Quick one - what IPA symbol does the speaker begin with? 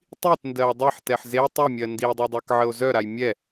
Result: tˤ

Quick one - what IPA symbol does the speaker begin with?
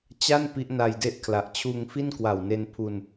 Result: t͡ɕ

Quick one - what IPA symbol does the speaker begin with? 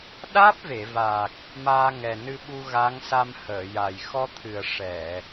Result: ɗ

